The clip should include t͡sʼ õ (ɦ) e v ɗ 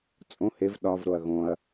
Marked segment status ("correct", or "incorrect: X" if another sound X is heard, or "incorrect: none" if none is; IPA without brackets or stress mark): incorrect: h